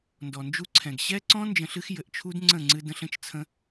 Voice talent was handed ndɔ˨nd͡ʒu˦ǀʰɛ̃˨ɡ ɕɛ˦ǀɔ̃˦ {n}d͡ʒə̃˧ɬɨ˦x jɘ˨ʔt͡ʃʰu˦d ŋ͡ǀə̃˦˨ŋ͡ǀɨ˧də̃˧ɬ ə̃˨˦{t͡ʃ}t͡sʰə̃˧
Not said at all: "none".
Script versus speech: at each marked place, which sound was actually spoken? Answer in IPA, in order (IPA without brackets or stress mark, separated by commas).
n, t͡ʃ